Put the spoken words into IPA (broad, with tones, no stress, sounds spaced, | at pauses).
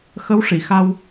x ə˧˥ w ʂ i˨˩˨ x a˧ w